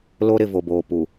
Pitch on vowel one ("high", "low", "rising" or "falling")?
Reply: high